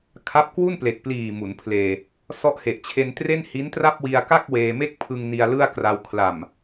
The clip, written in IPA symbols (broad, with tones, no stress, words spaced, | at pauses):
kʰa˦˥p̚kwu˥˩n ple˨˩k̚pliː˨˩ mu˩˦npʰleː˧ | sɔ˦˥ʔhe˨˩ʔt͡ɕʰe˧ntre˥˩n hi˦˥ntra˥˩p̚wi˧a̯ka˥˩k̚ weː˧ me˥˩k̚ pʰɯ˧ŋ ni˧a̯lɯ˥˩a̯kra˧w kʰla˨˩m